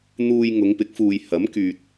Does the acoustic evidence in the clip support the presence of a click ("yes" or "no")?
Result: no